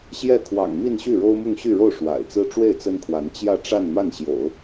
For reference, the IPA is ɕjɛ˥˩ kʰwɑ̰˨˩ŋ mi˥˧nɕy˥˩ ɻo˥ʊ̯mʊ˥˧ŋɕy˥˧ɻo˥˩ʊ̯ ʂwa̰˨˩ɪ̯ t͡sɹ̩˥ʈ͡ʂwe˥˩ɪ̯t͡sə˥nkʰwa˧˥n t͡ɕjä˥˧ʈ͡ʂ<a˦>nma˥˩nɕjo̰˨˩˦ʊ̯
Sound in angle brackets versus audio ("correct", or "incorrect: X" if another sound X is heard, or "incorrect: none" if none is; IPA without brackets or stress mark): incorrect: a˥˧